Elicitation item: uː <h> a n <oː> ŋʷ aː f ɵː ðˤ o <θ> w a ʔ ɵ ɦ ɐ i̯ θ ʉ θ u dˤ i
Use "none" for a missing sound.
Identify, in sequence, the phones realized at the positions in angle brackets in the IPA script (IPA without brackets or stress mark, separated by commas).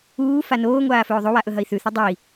f, oː, none